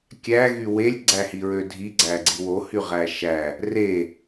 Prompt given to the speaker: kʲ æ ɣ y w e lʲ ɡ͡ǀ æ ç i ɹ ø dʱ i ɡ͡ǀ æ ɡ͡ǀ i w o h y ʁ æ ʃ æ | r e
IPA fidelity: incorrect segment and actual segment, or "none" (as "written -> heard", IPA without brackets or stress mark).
ç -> h